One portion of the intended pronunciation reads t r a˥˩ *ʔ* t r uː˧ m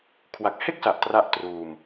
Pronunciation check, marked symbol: correct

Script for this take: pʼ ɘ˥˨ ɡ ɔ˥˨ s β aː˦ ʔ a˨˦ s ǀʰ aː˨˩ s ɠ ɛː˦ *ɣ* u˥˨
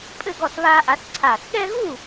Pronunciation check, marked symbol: correct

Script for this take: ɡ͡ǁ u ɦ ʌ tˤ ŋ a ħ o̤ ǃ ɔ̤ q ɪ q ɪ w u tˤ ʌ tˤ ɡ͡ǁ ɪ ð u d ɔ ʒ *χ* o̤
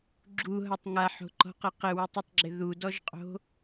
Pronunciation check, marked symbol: incorrect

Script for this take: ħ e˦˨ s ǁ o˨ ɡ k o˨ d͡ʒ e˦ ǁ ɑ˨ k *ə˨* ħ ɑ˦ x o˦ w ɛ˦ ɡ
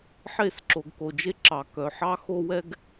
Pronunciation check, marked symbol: incorrect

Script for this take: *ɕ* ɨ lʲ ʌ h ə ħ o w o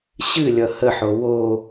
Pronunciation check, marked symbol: correct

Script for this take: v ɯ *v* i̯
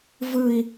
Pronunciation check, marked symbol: incorrect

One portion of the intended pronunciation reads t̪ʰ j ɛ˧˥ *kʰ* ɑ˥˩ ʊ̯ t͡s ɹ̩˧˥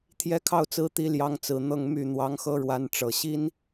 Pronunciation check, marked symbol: correct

